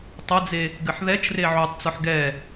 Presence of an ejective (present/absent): absent